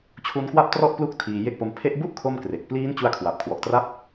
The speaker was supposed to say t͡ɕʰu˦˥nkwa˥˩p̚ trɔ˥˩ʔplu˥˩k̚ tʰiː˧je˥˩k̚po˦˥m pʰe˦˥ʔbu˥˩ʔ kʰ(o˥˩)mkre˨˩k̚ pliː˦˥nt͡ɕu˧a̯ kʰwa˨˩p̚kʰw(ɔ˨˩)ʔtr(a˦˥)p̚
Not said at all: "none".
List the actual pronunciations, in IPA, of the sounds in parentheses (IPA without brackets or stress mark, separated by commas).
o˥˩, ɔ˨˩, a˥˩